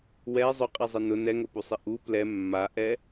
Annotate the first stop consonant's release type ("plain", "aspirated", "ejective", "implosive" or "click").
ejective